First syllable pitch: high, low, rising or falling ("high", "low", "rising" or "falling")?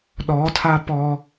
rising